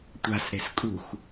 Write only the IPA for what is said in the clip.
tʷa̤sɾe̤s kʼṳx

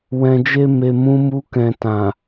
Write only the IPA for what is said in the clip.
wɛ̃˨d͡ʒe˧ me˨mũ˨˦mu˧kɛ̃˨ tã˨

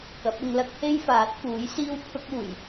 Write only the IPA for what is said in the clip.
kɐ˨˥p̚ʊ˧ŋ lɐ˥k̚he˥j faː˨˥t̚fuː˨˥jsiː˥w pʰʊ˥k̚uː˨˩j

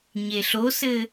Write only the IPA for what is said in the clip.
ɲeɬosɘ

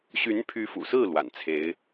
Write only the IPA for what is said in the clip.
ɕy˧˥npʰy˧˥fṵ˨˩sɹ̩˥˩ lwa̰˨˩nt͡sʰe˧˥ɪ̯

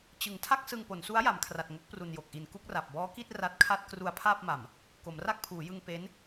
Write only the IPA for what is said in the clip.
t͡ɕɯ˩˦ŋtʰa˥˩k̚ sɯ˧ŋpo˩˦nsu˦˥a̯ ja˩˦mkʰra˨˩t̚ŋo˦˥k̚pru˨˩n jo˨˩k̚ʔi˨˩n ku˥˩k̚ra˨˩p̚ bɔː˦˥ki˥˩t̚ ra˦˥t̚kʰa˥˩t̚ kru˧a̯pʰaː˥˩p̚ma˨˩m | ko˩˦mra˥˩k̚pʰuː˩˦jɯ˧ŋ pe˦˥n

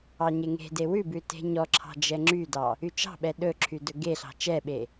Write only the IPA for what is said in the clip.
ɑɲeŋe̤de wʉbʉ te̤ɲɔǁʰɑ̤ d͡ʒɛŋ͡ǁydɑ | yt͡ʃɑ̤ɓɛ ɗɵǁʰy dɵɡeɬɑ̤ t͡ʃɛɓe

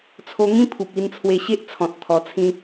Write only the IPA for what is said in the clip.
t͡sʰo˧ŋĩ˦pʰu˨p̚ i˧nt͡sʰwe˧ɕe˦ʔ t͡sʰɔ̃˨t̚ t̪ʰɔ˧t͡sʰĩ˦

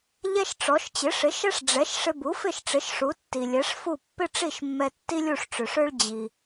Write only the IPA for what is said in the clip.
ʎɛ˥ʃʈ͡ʂɔ˩˥ʃ t͡ɕɪ˩˥ ʂɪ˩˥ʃɛ˥ʂ ɖ͡ʐɛ˩˥ʃ ʂɪ˧bu˩˥fɪ˥˩ʃʈ͡ʂɪ˩˥ʃ ʂu˩˥tːi˩lʲɛ˩˥ʂfu˥˩ pːɪ˥ʈ͡ʂi˥˩ʃmːɛ˧ tːi˥lʲu˥˩ʂʈ͡ʂø˩ʂø˥ɭ d͡ʑi˩

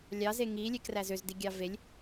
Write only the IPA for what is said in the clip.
lʲɑze ŋilʲekræ zøzdiɡʲɑ velʲ

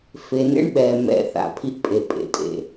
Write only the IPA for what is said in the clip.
fe˨nḛ˦ɳɓɛ˨ mɛ̰˨ θa̰˨ pʰi˦ʔpʼe˨pʼḛ˨tʼḛ˨

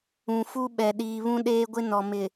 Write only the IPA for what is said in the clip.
ũ˨fu˦ɓɛ˨ ɗiː˨βũ˦ɗeː˦ɡʷɪ˦ nɔ˨ mɪ˨

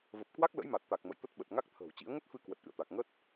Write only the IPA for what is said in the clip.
və˨˩p̚kwa˦˥k̚ lə̰˧˥jma˨˩t̚t̪a˨˩k̚ mə̰˧˨jt̪ə˦˥t̚ɓə˨˩t̚ ŋa˦˥k̚t̪ʰə̤ː˨˩wt͡ɕḭ˧˥ə̯ ŋə˦˥t̚fɨ˧ kwə˨˩t̚ʔɨ̰˧˨ə̯t̪a˨˩k̚ ŋə˦˥t̚

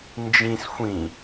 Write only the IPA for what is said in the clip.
nd͡ʒĩs xʷĩ

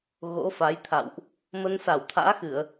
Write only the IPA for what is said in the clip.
ɣo̰˧˥fa˨˦jt̪ʰa̰˧˨wʔ | mə˧nsa˧˩wt̪ʰa̰ː˧˥xɨ˧˩˨ə̯

